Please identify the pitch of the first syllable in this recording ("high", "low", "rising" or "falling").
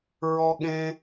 high